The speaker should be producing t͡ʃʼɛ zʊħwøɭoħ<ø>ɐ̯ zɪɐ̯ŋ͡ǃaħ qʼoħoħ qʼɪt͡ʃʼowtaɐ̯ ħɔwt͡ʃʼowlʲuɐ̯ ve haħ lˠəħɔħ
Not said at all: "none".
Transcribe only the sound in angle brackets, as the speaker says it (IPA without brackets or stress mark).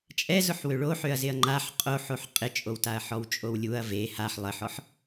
ø